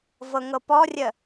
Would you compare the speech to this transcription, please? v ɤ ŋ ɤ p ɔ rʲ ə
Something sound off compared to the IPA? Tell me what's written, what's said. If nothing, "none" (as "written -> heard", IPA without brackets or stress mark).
none